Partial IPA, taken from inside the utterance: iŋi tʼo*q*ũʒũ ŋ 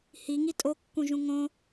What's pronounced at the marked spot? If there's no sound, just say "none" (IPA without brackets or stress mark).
kː